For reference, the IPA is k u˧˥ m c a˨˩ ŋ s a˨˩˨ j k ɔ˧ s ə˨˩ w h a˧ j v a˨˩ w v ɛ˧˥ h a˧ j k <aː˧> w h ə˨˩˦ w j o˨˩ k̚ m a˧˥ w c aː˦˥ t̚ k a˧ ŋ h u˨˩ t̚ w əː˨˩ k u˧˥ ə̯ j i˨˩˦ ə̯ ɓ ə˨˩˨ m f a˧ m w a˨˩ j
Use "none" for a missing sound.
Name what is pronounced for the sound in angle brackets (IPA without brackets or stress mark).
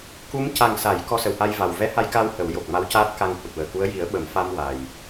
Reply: aː˧